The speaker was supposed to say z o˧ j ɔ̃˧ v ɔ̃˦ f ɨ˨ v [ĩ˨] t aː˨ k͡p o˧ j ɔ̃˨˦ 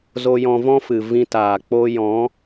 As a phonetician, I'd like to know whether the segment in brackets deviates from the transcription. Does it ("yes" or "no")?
yes